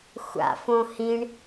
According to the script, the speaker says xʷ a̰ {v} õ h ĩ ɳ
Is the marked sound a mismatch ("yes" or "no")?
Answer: yes